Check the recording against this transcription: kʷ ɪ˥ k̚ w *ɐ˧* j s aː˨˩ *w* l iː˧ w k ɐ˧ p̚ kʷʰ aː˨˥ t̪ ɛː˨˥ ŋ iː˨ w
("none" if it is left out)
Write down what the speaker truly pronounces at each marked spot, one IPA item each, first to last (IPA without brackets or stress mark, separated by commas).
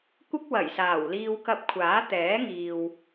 ɐ˨˩, w